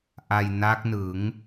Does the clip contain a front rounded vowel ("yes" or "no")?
no